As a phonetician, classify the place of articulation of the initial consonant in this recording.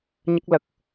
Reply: palatal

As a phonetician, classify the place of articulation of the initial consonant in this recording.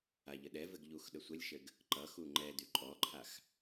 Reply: palatal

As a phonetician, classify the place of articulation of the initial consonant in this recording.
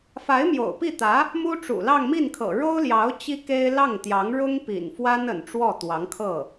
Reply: labial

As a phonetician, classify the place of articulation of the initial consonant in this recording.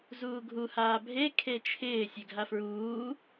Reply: alveolar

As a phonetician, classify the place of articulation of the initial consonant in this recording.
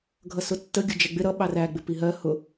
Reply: velar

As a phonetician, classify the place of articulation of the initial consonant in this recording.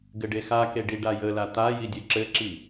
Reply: velar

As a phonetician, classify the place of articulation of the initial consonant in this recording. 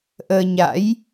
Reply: glottal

